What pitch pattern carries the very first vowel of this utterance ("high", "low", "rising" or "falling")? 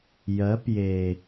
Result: rising